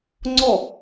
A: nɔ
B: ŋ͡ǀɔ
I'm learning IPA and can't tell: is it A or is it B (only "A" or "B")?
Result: B